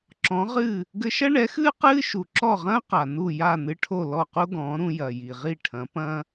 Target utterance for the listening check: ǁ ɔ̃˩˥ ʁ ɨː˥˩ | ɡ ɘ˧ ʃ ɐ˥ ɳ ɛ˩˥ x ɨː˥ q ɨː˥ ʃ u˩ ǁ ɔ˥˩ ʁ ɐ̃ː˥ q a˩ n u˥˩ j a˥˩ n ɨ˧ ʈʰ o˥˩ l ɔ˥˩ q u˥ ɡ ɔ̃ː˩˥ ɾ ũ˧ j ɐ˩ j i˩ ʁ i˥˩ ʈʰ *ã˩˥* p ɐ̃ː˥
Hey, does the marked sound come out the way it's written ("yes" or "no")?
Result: no